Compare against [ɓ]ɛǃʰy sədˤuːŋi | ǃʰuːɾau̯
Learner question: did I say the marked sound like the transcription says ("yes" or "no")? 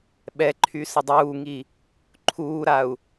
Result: yes